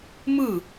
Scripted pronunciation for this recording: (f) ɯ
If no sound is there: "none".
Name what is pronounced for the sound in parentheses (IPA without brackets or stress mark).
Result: m